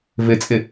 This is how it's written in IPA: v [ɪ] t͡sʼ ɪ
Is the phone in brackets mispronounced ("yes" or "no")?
no